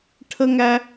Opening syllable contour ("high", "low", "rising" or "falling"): high